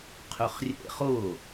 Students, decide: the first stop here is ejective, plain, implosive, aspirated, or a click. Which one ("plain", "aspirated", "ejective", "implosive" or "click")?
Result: aspirated